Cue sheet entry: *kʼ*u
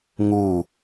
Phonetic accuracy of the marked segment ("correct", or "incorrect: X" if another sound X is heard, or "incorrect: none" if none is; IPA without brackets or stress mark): incorrect: ŋ